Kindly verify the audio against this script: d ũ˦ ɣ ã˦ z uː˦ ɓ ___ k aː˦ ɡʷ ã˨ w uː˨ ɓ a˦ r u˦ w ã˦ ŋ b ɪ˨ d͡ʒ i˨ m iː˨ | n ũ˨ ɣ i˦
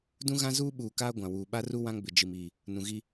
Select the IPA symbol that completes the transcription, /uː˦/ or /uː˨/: uː˨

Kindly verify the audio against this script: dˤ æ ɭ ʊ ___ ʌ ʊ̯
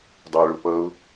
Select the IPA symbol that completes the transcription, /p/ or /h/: p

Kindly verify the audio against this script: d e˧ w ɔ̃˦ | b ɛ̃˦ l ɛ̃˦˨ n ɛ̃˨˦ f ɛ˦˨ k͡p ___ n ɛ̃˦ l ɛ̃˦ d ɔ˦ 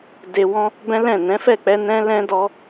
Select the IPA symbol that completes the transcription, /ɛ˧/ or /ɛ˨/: ɛ˧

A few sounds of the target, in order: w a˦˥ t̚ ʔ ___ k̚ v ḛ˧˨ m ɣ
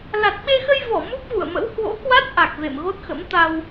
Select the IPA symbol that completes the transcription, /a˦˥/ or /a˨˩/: a˨˩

